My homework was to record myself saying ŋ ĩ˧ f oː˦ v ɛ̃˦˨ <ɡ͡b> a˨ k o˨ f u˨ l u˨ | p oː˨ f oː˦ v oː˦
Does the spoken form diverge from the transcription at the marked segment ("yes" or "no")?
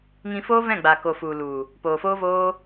no